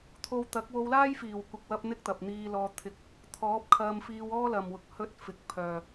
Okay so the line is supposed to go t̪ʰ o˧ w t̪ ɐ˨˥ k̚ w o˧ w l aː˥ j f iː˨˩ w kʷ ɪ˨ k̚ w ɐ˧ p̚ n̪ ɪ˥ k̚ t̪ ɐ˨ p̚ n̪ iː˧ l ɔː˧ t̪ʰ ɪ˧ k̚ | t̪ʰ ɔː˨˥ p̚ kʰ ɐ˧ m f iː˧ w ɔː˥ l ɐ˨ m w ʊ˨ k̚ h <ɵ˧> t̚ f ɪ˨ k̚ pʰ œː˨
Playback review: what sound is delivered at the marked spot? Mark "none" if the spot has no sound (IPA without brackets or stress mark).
ɵ˧